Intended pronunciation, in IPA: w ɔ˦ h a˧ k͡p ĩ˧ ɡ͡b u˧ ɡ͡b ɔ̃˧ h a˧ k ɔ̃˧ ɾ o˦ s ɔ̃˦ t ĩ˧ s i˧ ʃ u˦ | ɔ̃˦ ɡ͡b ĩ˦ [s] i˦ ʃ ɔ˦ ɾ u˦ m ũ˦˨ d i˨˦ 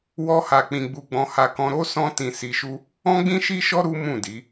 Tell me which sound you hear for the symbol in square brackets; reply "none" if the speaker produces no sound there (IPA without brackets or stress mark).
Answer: ʃ